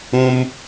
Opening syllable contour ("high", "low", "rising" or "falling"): high